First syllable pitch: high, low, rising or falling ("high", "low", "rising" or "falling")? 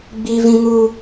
high